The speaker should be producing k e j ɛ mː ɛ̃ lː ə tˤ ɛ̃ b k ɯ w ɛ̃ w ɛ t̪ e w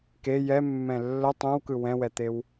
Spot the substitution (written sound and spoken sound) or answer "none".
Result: b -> w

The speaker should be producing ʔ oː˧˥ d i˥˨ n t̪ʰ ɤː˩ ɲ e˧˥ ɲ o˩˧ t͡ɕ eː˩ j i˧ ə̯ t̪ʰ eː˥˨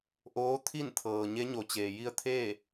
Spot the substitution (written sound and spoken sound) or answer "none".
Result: d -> t̪ʰ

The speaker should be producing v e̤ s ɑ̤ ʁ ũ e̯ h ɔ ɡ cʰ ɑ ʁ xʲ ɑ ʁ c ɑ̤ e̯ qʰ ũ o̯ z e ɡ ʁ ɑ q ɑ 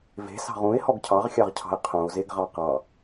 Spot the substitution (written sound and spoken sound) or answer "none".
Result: c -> cʰ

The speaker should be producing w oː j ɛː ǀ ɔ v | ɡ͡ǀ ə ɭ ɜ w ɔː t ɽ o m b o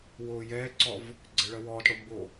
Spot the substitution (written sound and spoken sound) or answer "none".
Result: none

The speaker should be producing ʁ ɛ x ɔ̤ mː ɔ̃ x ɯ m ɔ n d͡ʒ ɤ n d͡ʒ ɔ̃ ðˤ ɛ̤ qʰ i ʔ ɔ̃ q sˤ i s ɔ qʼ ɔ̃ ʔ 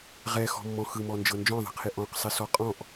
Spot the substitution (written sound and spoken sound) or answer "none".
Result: none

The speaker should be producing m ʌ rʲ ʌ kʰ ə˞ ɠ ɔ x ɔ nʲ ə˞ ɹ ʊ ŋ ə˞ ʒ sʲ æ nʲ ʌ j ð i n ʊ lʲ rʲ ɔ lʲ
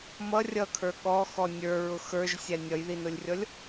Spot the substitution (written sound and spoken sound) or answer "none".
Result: ŋ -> x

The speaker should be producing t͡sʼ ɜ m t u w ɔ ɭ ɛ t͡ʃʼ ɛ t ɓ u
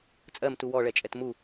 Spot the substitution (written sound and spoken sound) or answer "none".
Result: ɓ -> m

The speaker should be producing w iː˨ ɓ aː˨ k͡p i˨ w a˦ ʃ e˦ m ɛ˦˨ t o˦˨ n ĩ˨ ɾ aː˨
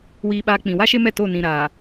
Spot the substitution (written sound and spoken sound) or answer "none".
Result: i˨ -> ĩ˨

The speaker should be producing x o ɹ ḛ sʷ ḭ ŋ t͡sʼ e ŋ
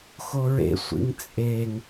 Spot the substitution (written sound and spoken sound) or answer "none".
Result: none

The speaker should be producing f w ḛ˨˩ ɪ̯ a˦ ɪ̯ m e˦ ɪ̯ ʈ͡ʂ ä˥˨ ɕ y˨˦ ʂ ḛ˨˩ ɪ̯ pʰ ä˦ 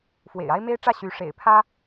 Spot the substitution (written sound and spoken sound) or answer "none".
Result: none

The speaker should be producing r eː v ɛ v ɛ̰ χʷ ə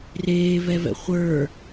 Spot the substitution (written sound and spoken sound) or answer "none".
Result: ə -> ə˞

